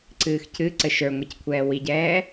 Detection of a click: present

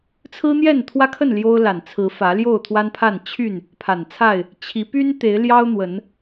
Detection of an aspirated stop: present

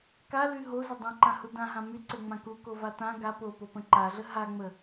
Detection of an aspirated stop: absent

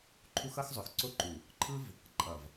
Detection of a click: present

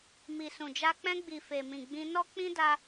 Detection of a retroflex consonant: absent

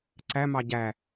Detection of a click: present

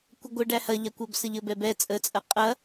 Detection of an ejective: present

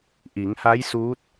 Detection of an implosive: absent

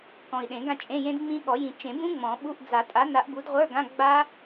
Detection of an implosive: present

